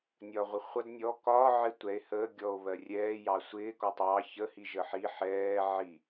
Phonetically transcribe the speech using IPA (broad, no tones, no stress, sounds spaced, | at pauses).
nʲ ɒː ʁʷ ɪ χʷ ʌ d nʲ ɔ k ɒː ʕ ɪ tʷ ɛ e̯ h əː ɡʲ ɔ o̯ β ɜ rʲ ɛː j ɑ sʷ ɪː k ɔ tˤ ɑ ç ə h i ʒ ə ħ i ħ ɛː ʕ i